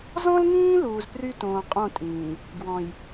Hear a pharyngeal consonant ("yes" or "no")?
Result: no